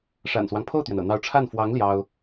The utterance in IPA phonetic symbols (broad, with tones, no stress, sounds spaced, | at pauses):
ʂ a̰˨˩ n s w ɑ˦ ŋ pʰ o˥˩ ʊ̯ t̪ ɥ ɛ˩ n ɤ̰˨˩ n̪ ɑ˧˥ ʊ̯ ʈ͡ʂʰ a˥˩ n f w ɑ˧˥ ŋ l j ɑ˥ ʊ̯